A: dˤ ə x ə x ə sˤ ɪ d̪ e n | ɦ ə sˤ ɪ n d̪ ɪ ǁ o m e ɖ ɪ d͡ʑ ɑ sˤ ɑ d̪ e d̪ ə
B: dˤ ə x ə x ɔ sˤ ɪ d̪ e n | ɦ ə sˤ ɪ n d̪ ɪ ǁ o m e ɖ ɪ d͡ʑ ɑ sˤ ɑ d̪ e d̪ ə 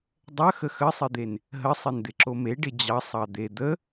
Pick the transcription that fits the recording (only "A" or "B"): A